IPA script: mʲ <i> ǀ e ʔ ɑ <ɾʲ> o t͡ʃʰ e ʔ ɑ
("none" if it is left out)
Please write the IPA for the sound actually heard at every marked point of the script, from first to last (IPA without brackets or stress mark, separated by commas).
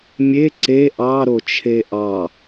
e, ɾ